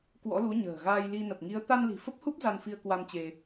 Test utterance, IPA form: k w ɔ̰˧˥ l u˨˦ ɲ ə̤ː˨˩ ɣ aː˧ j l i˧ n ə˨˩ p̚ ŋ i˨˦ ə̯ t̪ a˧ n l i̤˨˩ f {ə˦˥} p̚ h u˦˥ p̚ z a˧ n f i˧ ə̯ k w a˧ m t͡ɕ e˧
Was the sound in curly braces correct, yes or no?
yes